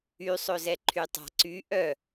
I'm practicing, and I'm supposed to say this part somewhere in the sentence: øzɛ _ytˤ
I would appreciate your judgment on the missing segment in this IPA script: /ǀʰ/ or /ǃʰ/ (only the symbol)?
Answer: ǃʰ